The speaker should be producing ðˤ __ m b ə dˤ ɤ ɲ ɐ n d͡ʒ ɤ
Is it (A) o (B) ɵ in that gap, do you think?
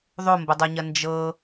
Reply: A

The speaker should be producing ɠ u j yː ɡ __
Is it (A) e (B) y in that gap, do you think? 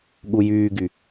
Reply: B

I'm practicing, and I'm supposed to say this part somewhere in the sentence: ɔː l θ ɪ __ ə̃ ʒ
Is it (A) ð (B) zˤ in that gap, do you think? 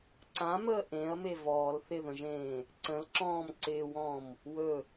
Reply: A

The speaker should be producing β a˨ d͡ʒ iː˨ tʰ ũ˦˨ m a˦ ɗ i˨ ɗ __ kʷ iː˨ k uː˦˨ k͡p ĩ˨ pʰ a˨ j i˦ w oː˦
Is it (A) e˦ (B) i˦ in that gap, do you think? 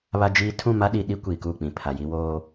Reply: B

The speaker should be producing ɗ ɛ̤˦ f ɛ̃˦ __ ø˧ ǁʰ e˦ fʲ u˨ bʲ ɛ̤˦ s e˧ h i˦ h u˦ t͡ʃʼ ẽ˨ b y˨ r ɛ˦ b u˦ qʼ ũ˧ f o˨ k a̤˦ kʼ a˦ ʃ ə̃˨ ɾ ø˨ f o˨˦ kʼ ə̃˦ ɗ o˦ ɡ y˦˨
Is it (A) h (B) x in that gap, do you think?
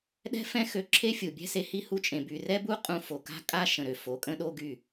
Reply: B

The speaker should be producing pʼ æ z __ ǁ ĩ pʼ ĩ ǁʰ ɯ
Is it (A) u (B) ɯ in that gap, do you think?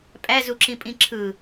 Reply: A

